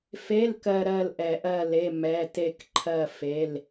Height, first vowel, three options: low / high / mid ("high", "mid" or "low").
mid